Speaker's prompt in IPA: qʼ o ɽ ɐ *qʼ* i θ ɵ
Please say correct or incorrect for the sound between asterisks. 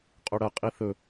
correct